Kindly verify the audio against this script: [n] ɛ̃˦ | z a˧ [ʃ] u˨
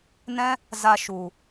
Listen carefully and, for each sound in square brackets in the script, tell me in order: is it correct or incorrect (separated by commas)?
correct, correct